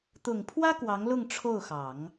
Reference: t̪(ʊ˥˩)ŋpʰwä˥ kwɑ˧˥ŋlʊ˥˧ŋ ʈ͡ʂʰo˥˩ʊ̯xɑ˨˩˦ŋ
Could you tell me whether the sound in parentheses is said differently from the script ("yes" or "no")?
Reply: yes